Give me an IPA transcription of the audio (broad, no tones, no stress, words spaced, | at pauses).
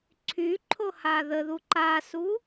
ǀʰy ǃʰohaðəðu ǃasu